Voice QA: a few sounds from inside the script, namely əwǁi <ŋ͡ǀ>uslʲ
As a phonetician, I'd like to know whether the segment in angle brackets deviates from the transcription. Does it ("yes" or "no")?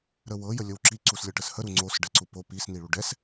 yes